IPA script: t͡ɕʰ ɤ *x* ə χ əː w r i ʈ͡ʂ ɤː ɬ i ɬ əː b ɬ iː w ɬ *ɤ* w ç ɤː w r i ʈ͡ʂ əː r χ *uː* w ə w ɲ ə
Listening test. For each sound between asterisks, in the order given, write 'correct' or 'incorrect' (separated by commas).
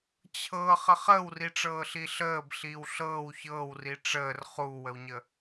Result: incorrect, incorrect, correct